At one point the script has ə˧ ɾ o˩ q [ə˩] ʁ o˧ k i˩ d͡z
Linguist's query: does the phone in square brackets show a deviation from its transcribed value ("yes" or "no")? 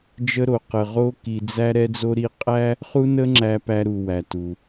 no